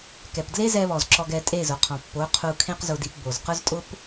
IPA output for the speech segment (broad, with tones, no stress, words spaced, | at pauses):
kɛ˨pdle˦zɛ˧βɔ˨z ǁɔ˧ɡɛ˧tʼe˦˨zʊ˨ qʰɔ̃˨pːo˨˦ qʰu˧kʰẽ˦qzʊ˧di˧p bo˨zqʊ˦ztʼʊ˦p